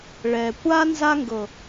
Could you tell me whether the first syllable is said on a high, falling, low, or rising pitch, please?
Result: low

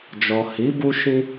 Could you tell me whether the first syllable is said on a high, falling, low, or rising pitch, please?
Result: low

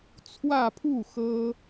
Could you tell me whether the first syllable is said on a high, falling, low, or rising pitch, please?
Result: falling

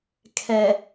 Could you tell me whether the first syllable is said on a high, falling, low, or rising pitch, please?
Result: low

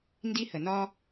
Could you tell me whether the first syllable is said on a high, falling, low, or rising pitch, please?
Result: high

